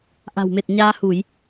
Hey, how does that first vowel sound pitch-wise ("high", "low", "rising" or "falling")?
low